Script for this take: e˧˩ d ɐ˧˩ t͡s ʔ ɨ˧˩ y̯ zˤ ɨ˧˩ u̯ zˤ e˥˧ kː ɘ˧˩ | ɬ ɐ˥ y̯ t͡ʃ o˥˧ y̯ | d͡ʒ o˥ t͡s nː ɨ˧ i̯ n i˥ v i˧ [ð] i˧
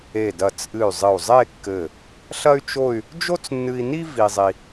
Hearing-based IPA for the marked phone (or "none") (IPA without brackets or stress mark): zˤ